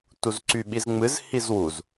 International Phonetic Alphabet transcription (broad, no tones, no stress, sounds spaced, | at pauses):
t u z ǀ y ɓ i z ŋ͡m ɨ z h i z w u z